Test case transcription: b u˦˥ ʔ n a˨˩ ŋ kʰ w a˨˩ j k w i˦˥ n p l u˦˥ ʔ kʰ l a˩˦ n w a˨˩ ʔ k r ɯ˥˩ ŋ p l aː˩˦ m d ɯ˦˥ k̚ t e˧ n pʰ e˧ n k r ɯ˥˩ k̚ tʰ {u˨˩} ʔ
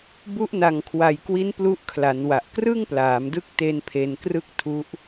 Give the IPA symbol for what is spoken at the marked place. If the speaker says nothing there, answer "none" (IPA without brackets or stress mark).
u˦˥